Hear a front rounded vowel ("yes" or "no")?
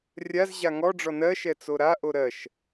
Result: no